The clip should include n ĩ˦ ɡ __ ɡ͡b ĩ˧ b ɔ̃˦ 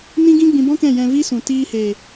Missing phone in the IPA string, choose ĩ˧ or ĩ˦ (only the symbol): ĩ˦